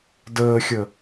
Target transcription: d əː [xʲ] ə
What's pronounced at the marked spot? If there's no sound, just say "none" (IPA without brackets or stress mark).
xʲ